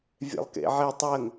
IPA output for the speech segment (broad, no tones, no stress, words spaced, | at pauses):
vʲɛ̰lˠkḛʕe tˤɜŋ